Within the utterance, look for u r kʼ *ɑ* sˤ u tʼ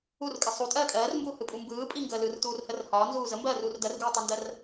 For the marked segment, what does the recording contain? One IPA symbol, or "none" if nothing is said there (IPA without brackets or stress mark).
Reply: ə